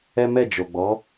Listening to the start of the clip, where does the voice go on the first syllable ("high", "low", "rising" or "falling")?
high